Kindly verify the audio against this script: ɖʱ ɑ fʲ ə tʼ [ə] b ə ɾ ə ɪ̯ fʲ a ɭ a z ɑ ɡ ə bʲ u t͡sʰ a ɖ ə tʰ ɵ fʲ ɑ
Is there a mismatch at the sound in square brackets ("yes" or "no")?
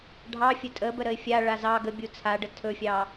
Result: no